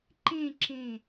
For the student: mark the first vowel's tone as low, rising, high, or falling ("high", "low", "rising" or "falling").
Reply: falling